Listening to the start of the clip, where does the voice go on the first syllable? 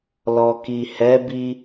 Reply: low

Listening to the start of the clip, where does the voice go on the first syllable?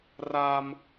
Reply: high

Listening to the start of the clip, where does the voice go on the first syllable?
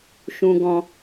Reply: low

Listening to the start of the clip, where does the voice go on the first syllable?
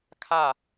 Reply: falling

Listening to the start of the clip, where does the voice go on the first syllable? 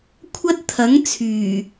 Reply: high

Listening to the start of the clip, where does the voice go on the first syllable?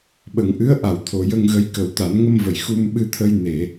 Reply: low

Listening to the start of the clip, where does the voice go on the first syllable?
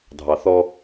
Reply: low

